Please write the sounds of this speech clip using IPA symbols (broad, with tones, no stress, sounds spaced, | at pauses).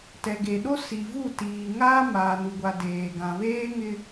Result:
t ɛ˨ ɡ e˨ ɗ o˦ s i˨ v u˦˨ t iː˨ ŋ aː˦ m aː˨ n u˨ ɡʷ a˨ d eː˨ ɡ ã˨ β eː˦ ŋ ɪ˦